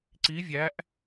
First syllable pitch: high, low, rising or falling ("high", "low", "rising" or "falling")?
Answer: rising